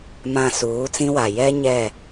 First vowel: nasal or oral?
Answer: nasal